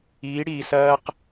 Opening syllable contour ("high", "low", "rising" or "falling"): rising